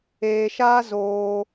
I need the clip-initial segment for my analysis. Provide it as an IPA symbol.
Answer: eː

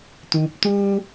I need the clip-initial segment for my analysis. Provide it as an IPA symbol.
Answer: t̪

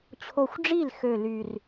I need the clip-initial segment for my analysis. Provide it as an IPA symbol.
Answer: t͡ɕʰ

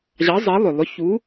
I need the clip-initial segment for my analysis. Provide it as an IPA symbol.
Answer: ʑ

